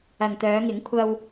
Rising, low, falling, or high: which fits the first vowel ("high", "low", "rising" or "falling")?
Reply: low